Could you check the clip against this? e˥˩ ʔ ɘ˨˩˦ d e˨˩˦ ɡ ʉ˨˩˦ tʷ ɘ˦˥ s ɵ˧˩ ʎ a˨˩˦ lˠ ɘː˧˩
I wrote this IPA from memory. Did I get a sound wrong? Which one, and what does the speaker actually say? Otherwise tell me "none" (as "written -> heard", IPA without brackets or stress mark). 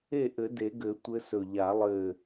ʉ˨˩˦ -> ɘ˨˩˦